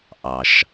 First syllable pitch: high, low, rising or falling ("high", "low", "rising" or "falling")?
low